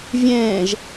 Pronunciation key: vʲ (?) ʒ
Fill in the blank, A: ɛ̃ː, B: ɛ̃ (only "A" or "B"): A